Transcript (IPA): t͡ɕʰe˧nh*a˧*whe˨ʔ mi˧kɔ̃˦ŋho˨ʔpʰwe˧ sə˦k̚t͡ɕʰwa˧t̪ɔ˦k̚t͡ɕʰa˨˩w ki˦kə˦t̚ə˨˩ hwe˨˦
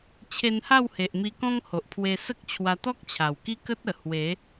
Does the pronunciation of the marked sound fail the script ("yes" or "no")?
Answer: yes